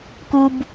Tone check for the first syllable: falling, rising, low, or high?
high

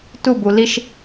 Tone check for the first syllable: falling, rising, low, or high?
falling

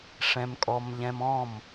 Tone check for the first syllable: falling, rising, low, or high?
high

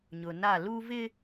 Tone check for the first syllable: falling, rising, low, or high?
low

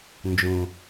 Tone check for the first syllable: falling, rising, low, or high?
low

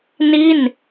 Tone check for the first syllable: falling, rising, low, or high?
falling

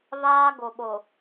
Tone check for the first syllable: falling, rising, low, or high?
high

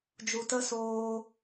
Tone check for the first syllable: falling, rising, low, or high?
low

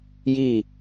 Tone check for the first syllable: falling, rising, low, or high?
falling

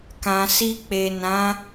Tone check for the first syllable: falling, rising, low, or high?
low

